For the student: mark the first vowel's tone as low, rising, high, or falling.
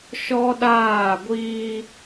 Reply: high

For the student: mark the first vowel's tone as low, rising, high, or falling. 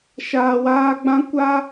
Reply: low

